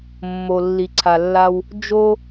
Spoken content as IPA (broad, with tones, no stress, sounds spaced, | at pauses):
mː o˨ lː i˨ ǀʰ a˨ lː a˦ w | d͡ʒ o˦